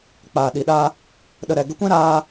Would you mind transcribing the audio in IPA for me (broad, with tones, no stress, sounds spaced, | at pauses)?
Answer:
k͡p aː˨ ɗ i˨ ɗ aː˧ | ɗ ə˨ ɾ ɛ˨ ɡ ə˧ kʷ ɛ̃˦ ɾ aː˧